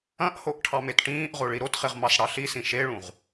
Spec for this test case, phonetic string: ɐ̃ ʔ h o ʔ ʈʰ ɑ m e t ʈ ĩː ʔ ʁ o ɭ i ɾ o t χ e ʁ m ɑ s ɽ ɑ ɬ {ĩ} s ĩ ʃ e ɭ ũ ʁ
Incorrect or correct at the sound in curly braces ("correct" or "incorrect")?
incorrect